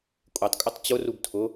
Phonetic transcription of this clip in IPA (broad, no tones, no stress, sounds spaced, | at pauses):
kʷʼ e tˤ kʼ ʊ tˤ t͡ɕ ʊ r u b tʰ ʊ